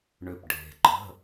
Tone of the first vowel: low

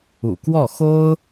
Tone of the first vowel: low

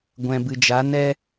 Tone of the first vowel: low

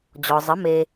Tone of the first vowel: low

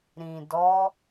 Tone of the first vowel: low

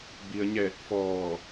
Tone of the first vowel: low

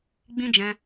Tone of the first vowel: high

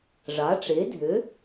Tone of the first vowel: rising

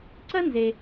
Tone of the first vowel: high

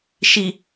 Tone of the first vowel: low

